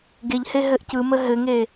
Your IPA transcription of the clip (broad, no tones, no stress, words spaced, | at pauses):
ɡeʎhe ɦɘʔcɯmə ɦɘŋe